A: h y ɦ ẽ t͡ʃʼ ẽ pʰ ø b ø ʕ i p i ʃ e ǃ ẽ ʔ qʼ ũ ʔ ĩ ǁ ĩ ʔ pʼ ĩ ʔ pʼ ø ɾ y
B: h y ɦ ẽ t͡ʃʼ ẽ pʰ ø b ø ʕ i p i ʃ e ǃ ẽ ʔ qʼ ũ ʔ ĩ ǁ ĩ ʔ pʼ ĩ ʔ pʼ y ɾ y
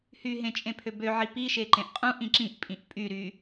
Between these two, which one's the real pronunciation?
B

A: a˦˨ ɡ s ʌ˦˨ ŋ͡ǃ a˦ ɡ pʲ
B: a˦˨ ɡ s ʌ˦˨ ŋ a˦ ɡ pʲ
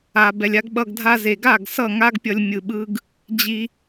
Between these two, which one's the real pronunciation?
B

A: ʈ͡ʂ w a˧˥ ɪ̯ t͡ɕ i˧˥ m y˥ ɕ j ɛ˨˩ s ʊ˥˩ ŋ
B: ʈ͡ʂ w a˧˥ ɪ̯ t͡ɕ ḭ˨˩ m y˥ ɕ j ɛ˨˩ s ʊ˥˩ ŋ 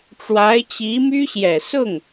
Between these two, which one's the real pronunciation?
A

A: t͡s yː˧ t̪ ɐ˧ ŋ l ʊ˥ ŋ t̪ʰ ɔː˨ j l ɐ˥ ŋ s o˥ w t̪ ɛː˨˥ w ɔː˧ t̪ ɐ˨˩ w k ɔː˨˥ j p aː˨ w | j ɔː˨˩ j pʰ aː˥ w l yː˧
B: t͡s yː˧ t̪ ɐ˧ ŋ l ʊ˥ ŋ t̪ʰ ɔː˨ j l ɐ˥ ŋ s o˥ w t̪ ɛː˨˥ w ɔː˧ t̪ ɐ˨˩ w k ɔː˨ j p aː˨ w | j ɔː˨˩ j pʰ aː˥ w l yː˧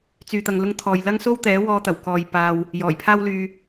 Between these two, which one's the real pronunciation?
B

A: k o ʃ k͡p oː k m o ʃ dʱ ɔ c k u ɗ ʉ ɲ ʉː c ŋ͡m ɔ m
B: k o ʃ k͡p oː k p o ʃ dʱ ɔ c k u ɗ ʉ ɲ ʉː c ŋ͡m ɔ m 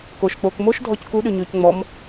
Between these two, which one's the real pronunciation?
A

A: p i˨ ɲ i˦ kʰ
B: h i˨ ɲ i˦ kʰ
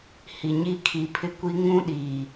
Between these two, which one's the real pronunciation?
B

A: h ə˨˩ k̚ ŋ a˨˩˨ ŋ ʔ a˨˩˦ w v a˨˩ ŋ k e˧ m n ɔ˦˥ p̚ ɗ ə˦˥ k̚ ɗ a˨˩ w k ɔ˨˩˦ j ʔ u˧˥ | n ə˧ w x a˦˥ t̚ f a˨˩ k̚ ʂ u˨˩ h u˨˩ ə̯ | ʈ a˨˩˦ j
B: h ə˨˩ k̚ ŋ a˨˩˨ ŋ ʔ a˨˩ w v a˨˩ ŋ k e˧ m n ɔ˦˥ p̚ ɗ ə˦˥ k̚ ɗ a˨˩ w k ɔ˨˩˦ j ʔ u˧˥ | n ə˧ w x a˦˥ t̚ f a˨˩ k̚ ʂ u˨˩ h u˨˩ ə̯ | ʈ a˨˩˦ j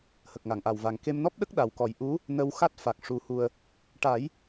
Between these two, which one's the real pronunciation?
B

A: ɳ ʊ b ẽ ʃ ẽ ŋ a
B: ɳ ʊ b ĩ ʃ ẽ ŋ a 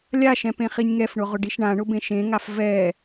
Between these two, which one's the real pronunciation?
A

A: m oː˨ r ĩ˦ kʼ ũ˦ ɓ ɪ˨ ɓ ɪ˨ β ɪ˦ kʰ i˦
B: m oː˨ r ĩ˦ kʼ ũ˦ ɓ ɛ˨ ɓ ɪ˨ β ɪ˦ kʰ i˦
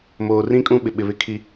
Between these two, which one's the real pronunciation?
A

